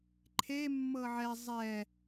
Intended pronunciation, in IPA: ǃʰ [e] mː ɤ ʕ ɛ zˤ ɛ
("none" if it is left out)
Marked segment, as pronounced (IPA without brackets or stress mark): e